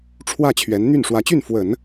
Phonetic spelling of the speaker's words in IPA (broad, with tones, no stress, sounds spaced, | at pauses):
ʈ͡ʂʰ w ä˥˩ t͡ɕʰ ɥ ɛ˧˥ n n̪ y˥˩ n ʂ w ä˧˥ t͡ɕ y˥˩ n f w ə˨˩˦ n